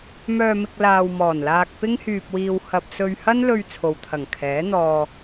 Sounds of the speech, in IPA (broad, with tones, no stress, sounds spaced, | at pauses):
m œː˧ m ɪ˧ k̚ l aː˧ w m ɔː˨˩ n l aː˧ k̚ p ɪ˥ ŋ h yː˧ p̚ w iː˧ w h ɐ˨ p̚ s ɵ˧ ɥ h ɐ˥ n l ɵ˧ ɥ t͡sʰ o˨ w t̪ʰ ɐ˨˩ ŋ kʰ ɛː˨˥ n̪ ɔː˧